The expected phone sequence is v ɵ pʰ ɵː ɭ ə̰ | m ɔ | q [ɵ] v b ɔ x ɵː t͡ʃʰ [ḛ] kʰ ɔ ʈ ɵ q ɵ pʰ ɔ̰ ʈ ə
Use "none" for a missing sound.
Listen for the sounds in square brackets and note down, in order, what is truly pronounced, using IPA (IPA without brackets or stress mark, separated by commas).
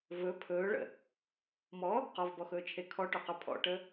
ɔ, e